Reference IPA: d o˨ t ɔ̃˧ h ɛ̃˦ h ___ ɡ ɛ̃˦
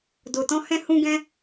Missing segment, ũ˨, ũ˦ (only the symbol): ũ˦